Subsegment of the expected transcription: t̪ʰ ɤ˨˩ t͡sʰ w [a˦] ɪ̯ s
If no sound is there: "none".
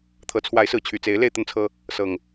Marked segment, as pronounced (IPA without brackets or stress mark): a˨˦